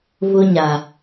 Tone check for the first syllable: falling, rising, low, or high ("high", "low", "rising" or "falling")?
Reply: high